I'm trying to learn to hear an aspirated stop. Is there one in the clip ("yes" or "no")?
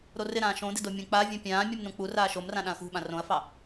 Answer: no